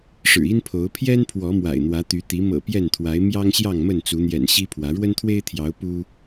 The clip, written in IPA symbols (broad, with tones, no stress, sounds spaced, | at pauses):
ʂ ɻ̩˨˩ i˦ n pʰ o˨˦ ʊ̯ pʰ j ɛ˦ n pʰ w ɔ˨˦ m w a̰˨˩ ɪ̯ n̪ w ä˨˦ t̪ y˨˦ t̪ i˨˦ m ɤ̰˨˩ p j ɛ˥˨ n t̪ʰ w a˨˦ ɪ̯ m j ɑ˦ ŋ ɕ j ɑ˥˨ ŋ m ə˥˨ n t͡s u˨˦ n̪ j ɛ̰˨˩ n ɕ i˦ pʰ w ä˨˦ ɻ w ə˦ n t̪ʰ w e˦ ɪ̯ t̪ʰ j ɑ˨˦ ʊ̯ p u˦